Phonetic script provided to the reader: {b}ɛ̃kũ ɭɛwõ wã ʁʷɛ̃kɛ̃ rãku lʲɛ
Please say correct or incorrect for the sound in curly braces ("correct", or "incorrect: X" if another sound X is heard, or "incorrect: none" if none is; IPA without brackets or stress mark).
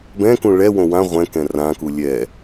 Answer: correct